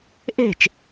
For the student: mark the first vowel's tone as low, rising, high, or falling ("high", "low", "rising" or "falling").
falling